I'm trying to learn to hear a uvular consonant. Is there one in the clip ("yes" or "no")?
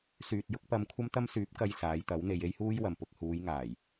no